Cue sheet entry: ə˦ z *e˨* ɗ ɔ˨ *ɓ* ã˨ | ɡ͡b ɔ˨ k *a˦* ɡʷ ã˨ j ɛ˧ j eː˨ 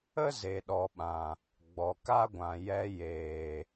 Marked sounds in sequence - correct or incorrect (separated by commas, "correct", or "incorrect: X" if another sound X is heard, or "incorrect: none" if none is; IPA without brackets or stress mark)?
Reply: correct, correct, correct